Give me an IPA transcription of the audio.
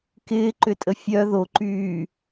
k ɪː ǃ ʏ tʼ ə fʲ œ ð o ǃ yː

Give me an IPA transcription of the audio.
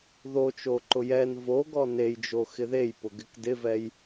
ð o t͡ʃ o ǃ ʊ j ɛ n v o ɡ ɔ n e j d͡ʒ o x ɪ ð e j p ʊ ɡ ɪ k d ɪ v ɛ j

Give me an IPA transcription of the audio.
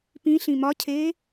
p ĩ ɬ ĩ m ɒ cʰ eː

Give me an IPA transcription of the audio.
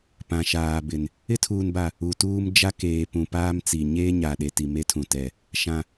p ã˨ ʃ aː˨ b ɪ˨ n | ɪ˦ tʰ uː˨ n b a˨ | u˨ t uː˦ m d͡ʒ a˦ k eː˨ p ũ˨ p aː˦ m t͡s i˨ ɲ eː˦ ɲ a˨ ɗ e˨ t i˨ m e˦ tʰ ũ˨ t ɛ˨ | ʃ ã˨

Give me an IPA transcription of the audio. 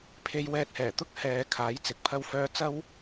pʰ e˧ j w ɛː˧ t̚ h ɛː˨˩ t̪ ʊ˥ k̚ h ɛː˨˧ kʰ aː˨˥ j t͡s ɪ˨˥ k̚ pʰ ɐ˥ w f œː˥ t͡s ɐ˥ w

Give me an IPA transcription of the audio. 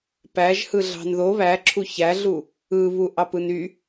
p æ ʒ h ɯ ɮ ɑ̤ n ð o β æ ǁʰ u ç æ ɮ u | ɯ β u ʔ ɑ p ɯ n y

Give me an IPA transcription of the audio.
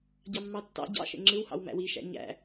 ɟ ɑ mː ɑ tː ɑ̰ ɟ ɑ̰ ʃ ḛ ŋ͡ǁ ɯ w h ɑ̰ w m æ̰ w i ʃ æ̰ ɲ æ̰

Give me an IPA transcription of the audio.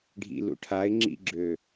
ɖʱ ḭ l ṵ ʈʰ a ɪ̯ ŋ͡ǁ ḭ ɡ͡ǁ ø

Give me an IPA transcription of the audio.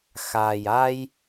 x aː˨ j a˦ j

